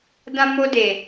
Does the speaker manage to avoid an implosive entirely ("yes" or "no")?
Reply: yes